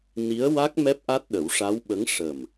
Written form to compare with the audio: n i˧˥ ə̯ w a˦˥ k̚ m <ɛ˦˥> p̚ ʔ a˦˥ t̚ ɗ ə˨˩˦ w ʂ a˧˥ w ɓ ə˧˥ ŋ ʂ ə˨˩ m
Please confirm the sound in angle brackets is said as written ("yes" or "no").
yes